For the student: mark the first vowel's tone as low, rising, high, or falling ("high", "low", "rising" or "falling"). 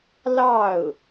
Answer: falling